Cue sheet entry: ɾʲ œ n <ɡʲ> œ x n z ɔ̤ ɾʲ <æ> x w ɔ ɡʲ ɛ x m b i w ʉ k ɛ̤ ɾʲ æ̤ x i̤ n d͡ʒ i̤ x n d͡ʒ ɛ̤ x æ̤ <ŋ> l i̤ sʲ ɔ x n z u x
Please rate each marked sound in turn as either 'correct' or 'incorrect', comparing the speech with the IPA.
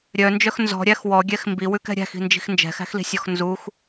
incorrect, correct, incorrect

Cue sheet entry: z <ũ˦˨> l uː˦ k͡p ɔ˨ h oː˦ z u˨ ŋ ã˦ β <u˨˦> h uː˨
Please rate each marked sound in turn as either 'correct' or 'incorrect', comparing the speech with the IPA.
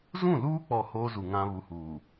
correct, correct

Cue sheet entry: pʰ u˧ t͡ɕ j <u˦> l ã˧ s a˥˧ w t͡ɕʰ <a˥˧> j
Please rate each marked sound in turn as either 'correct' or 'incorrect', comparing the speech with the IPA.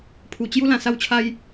correct, incorrect

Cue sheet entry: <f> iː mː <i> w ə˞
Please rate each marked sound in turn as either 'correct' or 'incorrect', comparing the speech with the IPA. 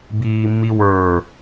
incorrect, correct

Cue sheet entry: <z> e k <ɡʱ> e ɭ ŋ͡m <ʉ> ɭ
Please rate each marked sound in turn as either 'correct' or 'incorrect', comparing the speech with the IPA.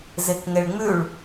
correct, incorrect, correct

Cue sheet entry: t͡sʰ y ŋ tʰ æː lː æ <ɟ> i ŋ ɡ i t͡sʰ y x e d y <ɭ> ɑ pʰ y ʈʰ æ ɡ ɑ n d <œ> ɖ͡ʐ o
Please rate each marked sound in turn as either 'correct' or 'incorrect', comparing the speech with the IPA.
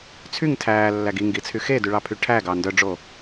incorrect, correct, correct

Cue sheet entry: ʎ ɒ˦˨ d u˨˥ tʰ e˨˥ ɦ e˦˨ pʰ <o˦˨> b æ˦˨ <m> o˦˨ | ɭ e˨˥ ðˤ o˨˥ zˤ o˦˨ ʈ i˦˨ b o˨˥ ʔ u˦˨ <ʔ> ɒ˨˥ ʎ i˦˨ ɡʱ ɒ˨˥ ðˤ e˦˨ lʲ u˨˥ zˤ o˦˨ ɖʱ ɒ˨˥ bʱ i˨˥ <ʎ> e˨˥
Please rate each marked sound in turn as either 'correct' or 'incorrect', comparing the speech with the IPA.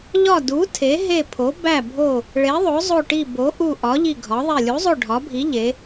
incorrect, incorrect, correct, correct

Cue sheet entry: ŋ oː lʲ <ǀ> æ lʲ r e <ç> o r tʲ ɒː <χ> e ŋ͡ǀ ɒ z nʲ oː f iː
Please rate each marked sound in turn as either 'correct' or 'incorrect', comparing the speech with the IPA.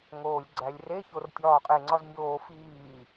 incorrect, correct, incorrect

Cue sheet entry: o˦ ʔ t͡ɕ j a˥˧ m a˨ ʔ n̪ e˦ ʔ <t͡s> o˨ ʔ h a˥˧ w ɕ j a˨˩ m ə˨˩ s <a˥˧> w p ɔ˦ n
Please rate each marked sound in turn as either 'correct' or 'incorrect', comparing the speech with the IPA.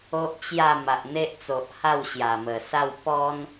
correct, correct

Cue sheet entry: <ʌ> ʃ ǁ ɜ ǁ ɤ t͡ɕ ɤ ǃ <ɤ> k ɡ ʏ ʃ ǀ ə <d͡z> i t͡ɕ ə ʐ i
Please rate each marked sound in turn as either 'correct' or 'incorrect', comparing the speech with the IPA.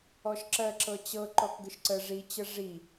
incorrect, incorrect, incorrect

